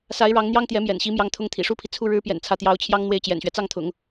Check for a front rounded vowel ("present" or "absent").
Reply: absent